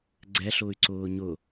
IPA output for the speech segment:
ɡ͡ǀɛɬʊːy̯ ǀʊːɲʊ

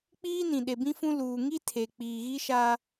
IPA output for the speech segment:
k͡piː˦nĩ˨ ɗe˨bĩ˦fũ˦ luː˨ŋi˦tʰe˨ k͡piː˨ɣi˦ʃa˦

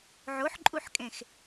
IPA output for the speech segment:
ʕoħǃʼuħkʼẽx

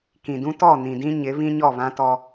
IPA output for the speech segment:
kĩ˨dũ˦tɔ˦˨ nĩ˨dĩ˦ɲɪ˨˦ βĩ˦ɲɔ˦˨βã˦ tɔ˦

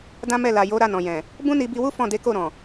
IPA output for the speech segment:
dã˦mɛ˦˨la˨jo˨˦ ɾa˦˨nɔ̃˨jɛ̃˨ | bũ˦ni˧bi˧wu˦ fɔ̃˦˨de˨˦ko˦˨ɾɔ̃˨

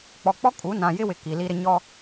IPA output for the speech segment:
k͡pɔ˨k͡pɔ˦ kʼu˨˦ nã˨ jɪ˦wɪ˨ ki˨li˦ɾɪ˦ ɲɔ˦

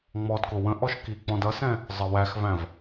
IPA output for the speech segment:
ŋ͡mɔdkʊ wə̃ʔɔʃ kik͡pɔ̃dʌsɛ̃ | zˤəwæxvæ̃v

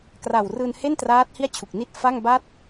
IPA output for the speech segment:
kra˨˩wrɯː˧nhe˥˩ntraː˦˥t̚ hi˥˩a̯t͡ɕʰu˨˩k̚ni˥˩t̚ fa˥˩ŋ ba˥˩t̚

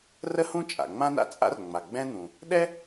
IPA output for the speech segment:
rə˥hũ˥ t͡ʃʼa̰˩ŋ͡mã˥na̰˥t͡sʼa̰˥r ŋ͡ma˩ ɡ͡bɛ̃˥n̪ũ˩ | ɗɛ˥

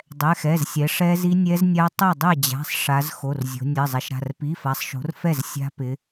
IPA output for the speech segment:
dˤɛ˩˧˩xɛ˩˧˩zsʲɛ˩˧ ʂɛ˦˥zi˦˥ nʲɛ˦˥znʲa˦˥ tˤɜ˥˩dˤɛ˥˩ d͡ʑa̤˩˧˩sˤ ʂa˩˧z xo˩˧˩rzʲo̤˩˧ nʲɜ˩˧˩zˤɛ˩˧ʃɾa̤˩˧˩r pi˩˧˩fa˩˧sˤʃo̤˩˧r fɛ˥˩z sʲa̤˦˥ pɪ˩˧

